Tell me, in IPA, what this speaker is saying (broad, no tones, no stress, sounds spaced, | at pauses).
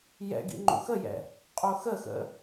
j ɛ̰ ɡ ḭ ŋ͡ǃ ṵ x ə j ɛ̰ | qʼ o x ə x ə̰